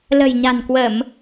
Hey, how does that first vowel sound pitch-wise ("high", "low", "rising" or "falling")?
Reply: low